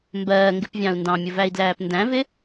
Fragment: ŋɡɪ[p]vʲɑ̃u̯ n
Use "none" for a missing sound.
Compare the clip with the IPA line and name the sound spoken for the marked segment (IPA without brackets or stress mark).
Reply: p